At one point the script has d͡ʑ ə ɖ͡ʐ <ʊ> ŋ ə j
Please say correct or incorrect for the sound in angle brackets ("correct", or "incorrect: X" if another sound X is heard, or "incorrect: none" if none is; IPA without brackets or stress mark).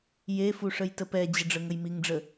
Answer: incorrect: ə